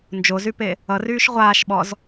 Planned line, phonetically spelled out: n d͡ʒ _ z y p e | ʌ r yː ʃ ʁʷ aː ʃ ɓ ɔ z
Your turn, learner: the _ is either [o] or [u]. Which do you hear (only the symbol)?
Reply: o